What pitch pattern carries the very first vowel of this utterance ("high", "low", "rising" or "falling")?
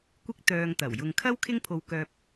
high